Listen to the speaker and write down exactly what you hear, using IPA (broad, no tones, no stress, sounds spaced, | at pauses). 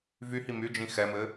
v y h i m y d͡ʒ ĩ x ɛ m ɘ